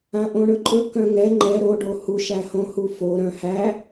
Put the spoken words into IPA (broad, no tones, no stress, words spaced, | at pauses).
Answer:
ãʔõɳɵǃʼɵ kœ̃ŋɛ ŋ͡ǃɛ ɾo ɖohuʃ æhõhufo ɾœ̃hæ